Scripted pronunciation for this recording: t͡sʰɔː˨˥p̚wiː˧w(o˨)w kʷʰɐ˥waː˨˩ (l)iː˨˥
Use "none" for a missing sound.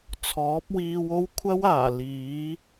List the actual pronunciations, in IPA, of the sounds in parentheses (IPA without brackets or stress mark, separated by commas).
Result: o˥, l